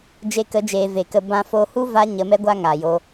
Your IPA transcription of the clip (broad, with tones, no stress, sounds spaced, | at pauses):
d͡ʒ e˧ k ə˨˦ d͡ʒ eː˨ v e˨ k ə˧ b ã˧ f o˧ h u˦ v a˦ ɲ ə˧ m ɛ˦ ɡʷ a˦ ŋ a˨ j o˧